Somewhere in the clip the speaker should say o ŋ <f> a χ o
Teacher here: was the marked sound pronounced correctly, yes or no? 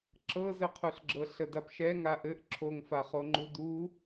yes